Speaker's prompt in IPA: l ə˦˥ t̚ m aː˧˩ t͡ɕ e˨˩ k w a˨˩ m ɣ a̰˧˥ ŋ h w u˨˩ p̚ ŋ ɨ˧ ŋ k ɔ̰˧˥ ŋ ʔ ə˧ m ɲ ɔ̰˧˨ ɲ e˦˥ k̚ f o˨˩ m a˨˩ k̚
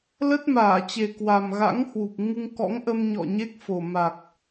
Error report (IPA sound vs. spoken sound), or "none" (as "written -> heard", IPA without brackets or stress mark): none